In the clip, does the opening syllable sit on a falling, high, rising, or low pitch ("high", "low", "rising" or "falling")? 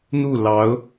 falling